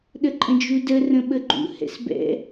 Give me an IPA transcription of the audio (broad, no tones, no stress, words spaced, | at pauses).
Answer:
ɗəǃʼə̃d͡ʒudə rə̃ɓəɡ͡ǃṵ hɛ̰sbɛ̰